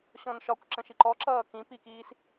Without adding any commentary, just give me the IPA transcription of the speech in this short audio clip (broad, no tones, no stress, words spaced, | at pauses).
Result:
ɕɔ̃nʃɒkʷ ǁə̃ʃiǃɔǁʌː kĩpikiːs